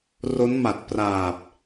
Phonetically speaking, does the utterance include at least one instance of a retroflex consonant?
no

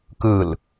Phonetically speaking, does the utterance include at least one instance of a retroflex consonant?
no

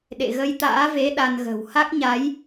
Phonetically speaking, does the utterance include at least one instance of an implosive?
yes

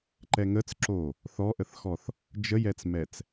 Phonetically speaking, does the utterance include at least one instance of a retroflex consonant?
no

